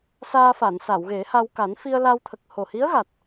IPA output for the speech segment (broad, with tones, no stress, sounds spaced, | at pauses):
s aː˧ f a˨˩˨ n s a˨˩˨ w ɣ e˨˩˦ h a˧ w k a˨˩˦ n f i˧ ə̯ l a˧ w t̪ʰ ə˨˩ k̚ h o˨˩ h i˧˥ ə̯ ɣ a˨˩ t̚